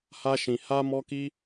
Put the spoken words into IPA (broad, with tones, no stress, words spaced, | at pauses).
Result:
ha˦ʃĩ˧ ha˦ mɔ˦ki˦